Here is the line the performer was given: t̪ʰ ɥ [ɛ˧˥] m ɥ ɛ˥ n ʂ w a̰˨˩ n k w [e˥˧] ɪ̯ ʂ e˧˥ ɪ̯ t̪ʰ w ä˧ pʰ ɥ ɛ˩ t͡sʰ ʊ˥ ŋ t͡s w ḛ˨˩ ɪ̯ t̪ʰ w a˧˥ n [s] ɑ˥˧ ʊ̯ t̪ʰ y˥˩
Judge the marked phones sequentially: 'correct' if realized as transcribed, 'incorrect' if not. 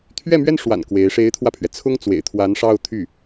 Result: incorrect, incorrect, incorrect

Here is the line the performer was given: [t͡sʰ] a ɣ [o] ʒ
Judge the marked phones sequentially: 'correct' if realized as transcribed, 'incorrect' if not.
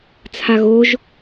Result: correct, correct

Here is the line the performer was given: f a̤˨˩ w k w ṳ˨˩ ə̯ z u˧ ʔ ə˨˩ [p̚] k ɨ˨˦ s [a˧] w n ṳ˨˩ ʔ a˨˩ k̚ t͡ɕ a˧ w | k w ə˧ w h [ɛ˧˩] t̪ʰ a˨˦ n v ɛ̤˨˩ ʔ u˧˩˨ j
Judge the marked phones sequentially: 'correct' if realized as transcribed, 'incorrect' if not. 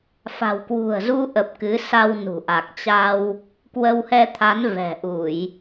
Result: correct, correct, incorrect

